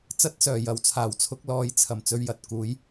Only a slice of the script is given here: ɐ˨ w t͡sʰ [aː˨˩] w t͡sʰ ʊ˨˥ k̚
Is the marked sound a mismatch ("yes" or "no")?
no